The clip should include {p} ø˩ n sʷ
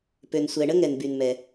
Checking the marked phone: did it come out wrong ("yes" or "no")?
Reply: no